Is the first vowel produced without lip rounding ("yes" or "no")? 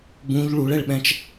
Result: no